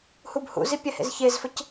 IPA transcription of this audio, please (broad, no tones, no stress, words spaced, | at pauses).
hubhṵzi pʲɛhḛzçezfəc